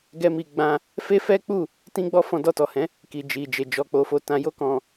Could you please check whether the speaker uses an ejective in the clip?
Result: no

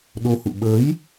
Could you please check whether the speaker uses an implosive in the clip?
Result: yes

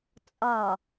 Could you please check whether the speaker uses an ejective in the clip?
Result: yes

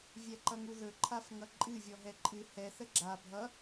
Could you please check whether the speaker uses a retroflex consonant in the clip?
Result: no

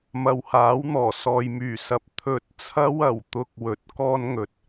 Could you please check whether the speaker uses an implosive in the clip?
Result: no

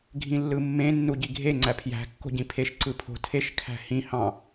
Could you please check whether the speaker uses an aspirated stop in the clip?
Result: yes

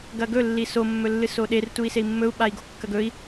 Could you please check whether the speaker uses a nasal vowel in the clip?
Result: no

